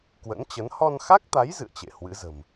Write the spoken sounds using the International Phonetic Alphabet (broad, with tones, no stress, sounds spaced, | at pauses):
k w ə̰˧˥ n t͡ɕ ə˨˦ n h ɔ˧ n x a˦˥ k̚ t̪ a˨˦ j z ɨ̰˧˨ ə̯ t͡ɕ ḛ˧˨ h w ɨ̰˧˥ z ə̤˨˩ m